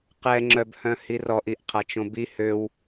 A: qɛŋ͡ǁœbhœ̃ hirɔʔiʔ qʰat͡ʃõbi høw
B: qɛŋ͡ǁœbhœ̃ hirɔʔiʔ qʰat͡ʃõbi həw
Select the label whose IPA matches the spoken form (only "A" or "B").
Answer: A